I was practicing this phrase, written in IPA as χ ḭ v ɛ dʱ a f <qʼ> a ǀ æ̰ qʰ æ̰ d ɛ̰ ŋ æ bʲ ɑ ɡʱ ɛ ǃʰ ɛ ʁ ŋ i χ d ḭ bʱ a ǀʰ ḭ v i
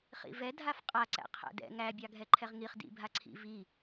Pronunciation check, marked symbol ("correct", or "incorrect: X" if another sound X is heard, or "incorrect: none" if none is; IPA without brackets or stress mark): correct